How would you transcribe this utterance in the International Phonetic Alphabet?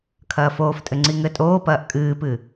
kʰɐːfoːftʼɘ ŋ͡ǀiŋɘtʼoːpɐːʔ kʼɨːpɨ

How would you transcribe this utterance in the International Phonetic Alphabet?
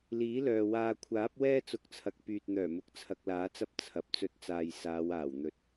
liː˨˥lœː˨ waː˨ kʷʰaː˨˥p̚wɛː˥ t͡sʊ˨˥k̚t͡sʰɐ˨k̚ pyː˨t̚n̪œː˨˩mʊ˨˥k̚ t͡sʰɐ˧k̚laː˨˥t͡sɐ˥p̚ t͡sʰɐ˨p̚ t͡sɵ˥t̚t͡saː˧j saː˨˧w aː˨˩wn̪ɵ˨t̚

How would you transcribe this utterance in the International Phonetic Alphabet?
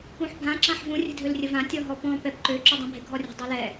ũħbʱã ǁãħvũ rʲə̤dʱølrʲəvã tʲɔɦɔpɔ̃ pɛp ǃø ǁudˤũbʱɪ ɡʱɔrʲə̤ dˤɛlɛ

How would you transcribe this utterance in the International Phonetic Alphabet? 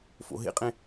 fo̰ɦḛqʼẽ

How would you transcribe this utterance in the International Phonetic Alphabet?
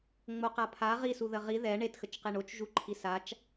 ŋ͡moqapʰa ʁisu ðəʁi ðɛ ɳetxət͡ʃqe ɳot͡ʃ ʒuǃʰisat͡ʃ

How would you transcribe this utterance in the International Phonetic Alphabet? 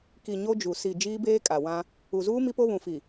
ki˨ ɲo˦d͡ʒu˨ si˨ d͡ʒiː˦beː˦kʼa˨wã˦ | u˨zuː˦ mi˦po˦βũ˨ fi˨

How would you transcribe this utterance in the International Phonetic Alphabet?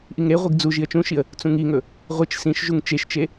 ʔiŋɾeʁʷiɡ d͡zu ʒiə̯t͡ʃũʃiə̯ | t͡sũŋiŋɵ | ʁʷɨt͡ʃ sĩʃʒuŋ t͡ʃeʃt͡ʃe

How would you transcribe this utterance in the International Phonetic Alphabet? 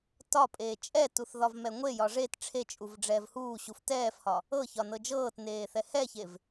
tɒpʼeː t͡ʃʼɛtuθ ðɒvmɛŋʷejɒ ʐet ʈ͡ʂʰet͡ʃʼuv ɖ͡ʐɛːvhuːɕuf tɛːfhɒ | ɤ çɒnɤd͡ʒɤːtneː θɛhɛçev

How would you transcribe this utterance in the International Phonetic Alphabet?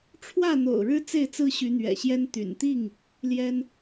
ʈ͡ʂʰwä˥˨n̪o̰˨˩ʊ̯ɻɻ̩˦ t͡se˥˨ɪ̯t͡sɹ̩˦ɕy˨˦ n̪ɥɛ̰˨˩ɕjɛ˦n t̪y̰˨˩nt̪i˥˨ŋ | ljɛ˦n

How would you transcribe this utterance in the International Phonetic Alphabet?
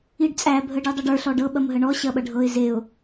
iɖt͡sʼæ bʱəɖidˤɐɖə˞ ɬɔɖɤ ɓɐmɦəɳɔ ɕɐɓɐɖʱɤɪ̯ zeʊ̯

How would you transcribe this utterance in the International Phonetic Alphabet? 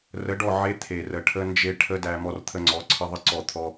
rə˨˦ɖɔ˦˨ ʕe˦ t̪ʰe˨rə˨ʈʰə˧nd͡ʒe˧ ʈʰə˦dæ˧ mɔ˧rt̪ʰə˧ŋ͡ǀɔ˨˦ ǀʰə˧ ðˤə˦ ǀɔ˦˨ t̪ʰɔ˧

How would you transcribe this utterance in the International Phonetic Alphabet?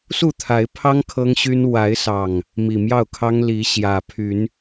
su˥˨t̪ʰa˨˦ɪ̯pʰɑ˦ŋ kʰɤ˦ŋɕy˦n wa˨˦ɪ̯sɑ˨˩ŋ | mi˨˩mjɑ˥˨ʊ̯kʰɑ˦ŋ li˨˦ ɕjä˨˩pʰy˨˦n

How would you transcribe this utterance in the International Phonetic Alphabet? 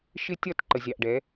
ʃɪ˦tʲɒ˦˨t ǃə˨zʲɑ˨ʔɖɛ˨˦

